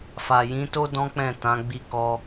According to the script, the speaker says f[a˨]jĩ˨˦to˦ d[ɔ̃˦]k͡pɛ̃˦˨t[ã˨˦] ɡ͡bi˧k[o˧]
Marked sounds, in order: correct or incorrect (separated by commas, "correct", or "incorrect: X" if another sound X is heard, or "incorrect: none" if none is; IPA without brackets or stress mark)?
correct, correct, correct, incorrect: ɔ˧